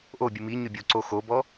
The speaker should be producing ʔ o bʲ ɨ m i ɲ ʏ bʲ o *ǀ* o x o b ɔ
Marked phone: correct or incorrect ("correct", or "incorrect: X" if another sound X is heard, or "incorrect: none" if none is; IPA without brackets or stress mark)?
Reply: correct